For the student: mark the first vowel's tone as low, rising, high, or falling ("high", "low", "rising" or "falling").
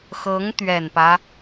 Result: rising